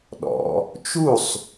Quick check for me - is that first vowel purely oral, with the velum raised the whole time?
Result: yes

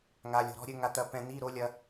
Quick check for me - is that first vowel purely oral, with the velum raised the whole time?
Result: yes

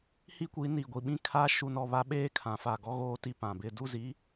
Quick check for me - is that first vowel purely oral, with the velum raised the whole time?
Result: yes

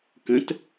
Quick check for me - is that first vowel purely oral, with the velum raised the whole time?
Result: no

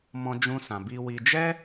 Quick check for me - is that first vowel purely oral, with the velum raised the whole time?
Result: no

